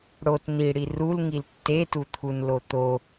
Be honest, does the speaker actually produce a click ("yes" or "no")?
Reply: no